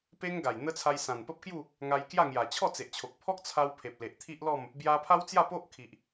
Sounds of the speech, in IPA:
p e˦ ŋ ɡ a˨˩ j n̪ ə˦ t͡sʰ a˧ j s ã˨˩ n p ə˦ p̚ k j u˥˧ | ŋ a˧ j k j a˥˧ ŋ j a˨˩ t͡ɕʰ ɔ˥˧ t͡s e˨ ʔ t͡ɕʰ o˨ k̚ pʰ ɔ˦ k̚ t͡sʰ a˧ w pʰ e˨ p̚ l e˨ ʔ t̪ʰ i˦ ʔ l ɔ˥˧ m | b j a˧ pʰ a˦ w t͡s j a˥˧ p o˦ ʔ kʰ i˨ ʔ

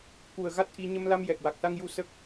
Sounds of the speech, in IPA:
k u˨˩ ə̯ ɣ a˦˥ t̚ ʔ i˧ ɲ ə˧ m l a˧ m j ɛ˨˩ k̚ w a˨˩ k̚ s a˧ ŋ j u˧ s ə˦˥ k̚

